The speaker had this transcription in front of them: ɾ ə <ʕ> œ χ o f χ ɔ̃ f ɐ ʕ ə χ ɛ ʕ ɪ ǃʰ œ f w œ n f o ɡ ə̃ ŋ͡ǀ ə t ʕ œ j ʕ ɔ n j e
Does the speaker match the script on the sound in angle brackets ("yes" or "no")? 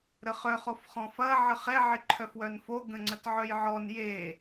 no